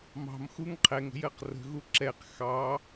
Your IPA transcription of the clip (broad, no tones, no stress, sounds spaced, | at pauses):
m ɑ̤ m x u ŋ qʰ ɛ ŋ ə̤ j ɜ q r ə̤ ɣ u ǁ ɛ q x ɑ